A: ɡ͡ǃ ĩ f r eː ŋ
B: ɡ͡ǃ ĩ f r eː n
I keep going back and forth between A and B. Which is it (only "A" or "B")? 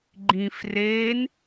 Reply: B